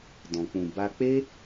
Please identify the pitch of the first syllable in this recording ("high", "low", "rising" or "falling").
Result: low